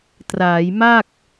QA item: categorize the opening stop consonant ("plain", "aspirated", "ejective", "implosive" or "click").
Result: plain